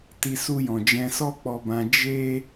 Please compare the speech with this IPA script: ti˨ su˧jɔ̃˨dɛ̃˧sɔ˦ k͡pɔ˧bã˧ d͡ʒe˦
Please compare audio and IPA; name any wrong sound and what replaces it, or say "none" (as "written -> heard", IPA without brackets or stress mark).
d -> d͡ʒ